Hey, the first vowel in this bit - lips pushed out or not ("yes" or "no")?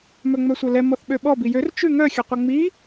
yes